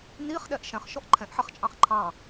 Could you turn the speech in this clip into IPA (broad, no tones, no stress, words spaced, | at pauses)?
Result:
niχ ɗɛʔʃɛ̃χ ʃɔʔǃʰɛ̃ʔħɛχ t͡ʃʼɑ̃χǃʰɑ̃